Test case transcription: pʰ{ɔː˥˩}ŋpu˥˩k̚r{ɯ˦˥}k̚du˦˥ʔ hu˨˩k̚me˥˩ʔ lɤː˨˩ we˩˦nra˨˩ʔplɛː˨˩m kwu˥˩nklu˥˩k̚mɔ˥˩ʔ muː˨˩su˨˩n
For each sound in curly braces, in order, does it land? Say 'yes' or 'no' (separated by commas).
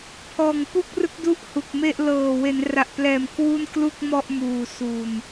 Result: no, yes